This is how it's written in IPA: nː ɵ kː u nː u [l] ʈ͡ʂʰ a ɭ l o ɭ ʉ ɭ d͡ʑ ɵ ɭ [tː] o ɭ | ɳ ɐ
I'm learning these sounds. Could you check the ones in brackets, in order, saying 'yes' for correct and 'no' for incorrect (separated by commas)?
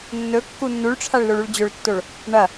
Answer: no, yes